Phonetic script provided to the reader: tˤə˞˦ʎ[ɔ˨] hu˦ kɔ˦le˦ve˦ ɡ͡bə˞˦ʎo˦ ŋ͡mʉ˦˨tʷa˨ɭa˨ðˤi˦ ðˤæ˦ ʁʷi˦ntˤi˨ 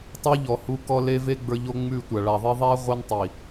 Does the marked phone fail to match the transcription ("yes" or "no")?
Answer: no